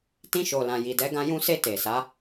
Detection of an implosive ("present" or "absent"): absent